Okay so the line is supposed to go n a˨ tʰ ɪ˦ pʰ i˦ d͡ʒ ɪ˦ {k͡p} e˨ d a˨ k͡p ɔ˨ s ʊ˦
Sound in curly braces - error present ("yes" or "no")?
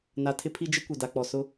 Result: yes